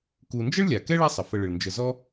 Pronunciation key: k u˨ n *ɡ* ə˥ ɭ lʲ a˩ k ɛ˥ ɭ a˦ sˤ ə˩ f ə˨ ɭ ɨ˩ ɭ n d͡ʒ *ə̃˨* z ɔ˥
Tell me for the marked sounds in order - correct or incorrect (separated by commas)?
incorrect, incorrect